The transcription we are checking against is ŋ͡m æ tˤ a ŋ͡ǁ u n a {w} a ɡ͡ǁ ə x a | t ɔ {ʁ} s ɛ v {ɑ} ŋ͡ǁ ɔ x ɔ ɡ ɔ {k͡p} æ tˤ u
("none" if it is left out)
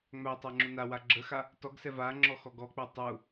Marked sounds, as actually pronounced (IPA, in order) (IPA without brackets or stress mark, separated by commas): w, ɡ, a, k͡p